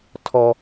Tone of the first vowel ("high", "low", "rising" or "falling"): high